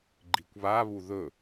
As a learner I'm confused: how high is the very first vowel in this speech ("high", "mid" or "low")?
high